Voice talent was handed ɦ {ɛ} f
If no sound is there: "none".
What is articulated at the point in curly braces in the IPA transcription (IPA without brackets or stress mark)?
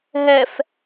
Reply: ɛ